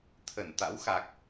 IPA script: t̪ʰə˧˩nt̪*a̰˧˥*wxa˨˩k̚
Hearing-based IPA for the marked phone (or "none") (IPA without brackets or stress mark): a̰˧˥